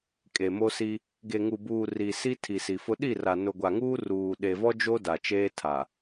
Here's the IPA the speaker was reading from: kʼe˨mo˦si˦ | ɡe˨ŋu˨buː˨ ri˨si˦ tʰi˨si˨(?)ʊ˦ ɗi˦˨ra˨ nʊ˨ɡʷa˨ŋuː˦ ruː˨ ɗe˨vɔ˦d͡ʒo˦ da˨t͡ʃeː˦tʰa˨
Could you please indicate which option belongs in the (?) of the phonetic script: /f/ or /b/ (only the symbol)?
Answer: f